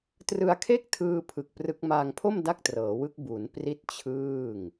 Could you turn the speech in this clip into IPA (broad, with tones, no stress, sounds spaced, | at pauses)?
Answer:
t r ɯ˧ a̯ kʰ e˥˩ k̚ tʰ ɯː˧ pʰ ɯ˨˩ k̚ p r ɯ˦˥ k̚ m aː˧ ŋ pʰ o˥˩ m d a˥˩ k̚ t r ɤː˩˦ w ɯ˦˥ k̚ b u˩˦ n p r i˥˩ t̚ t͡ɕʰ ɯː˥˩ ŋ